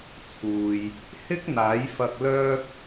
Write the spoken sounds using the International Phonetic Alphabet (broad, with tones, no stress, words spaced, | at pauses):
t͡sʰuː˨j | hɪ˥k̚n̪aː˨˥jfɐ˧k̚ lœː˥k̚